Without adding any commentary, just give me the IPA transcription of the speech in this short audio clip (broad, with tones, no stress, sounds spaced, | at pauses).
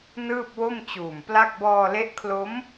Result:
n ɯː˥˩ p̚ w o˥˩ m t͡ɕ uː˨˩ m p l a˥˩ k̚ b ɔː˧ l e˦˥ ʔ kʰ l o˦˥ m